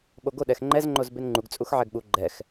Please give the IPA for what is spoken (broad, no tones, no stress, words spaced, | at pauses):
ɓoɡo ɗɛxŋ͡ǃɛz ŋ͡ǃozbenŋ͡ǃuɡ t͡sʼuxʕɛɡɓu ɡ͡ǃɛx